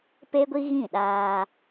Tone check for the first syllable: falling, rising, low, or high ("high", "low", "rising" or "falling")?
high